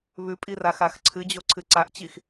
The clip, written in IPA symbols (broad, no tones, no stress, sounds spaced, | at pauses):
β ʉ pʼ i r a x a x ǀʰ ɨ d͡ʑ o ǀʰ ɨ ǀ a ʔ t͡ɕ i x